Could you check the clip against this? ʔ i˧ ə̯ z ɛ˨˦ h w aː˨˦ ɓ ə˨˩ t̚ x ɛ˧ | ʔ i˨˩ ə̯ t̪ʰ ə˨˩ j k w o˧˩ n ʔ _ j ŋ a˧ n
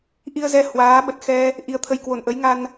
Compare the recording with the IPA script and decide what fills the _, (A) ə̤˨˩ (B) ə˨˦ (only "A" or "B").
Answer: B